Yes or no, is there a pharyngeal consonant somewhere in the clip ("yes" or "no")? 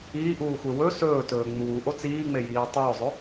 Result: no